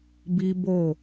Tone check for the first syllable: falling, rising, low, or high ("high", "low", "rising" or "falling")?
high